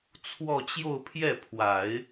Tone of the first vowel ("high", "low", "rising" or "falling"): falling